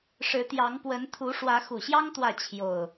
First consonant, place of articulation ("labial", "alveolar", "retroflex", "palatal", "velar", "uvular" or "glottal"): retroflex